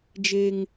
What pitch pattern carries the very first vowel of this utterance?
high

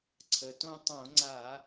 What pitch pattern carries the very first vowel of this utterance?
low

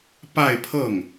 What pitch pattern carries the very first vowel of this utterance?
falling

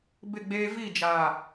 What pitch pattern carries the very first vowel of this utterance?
falling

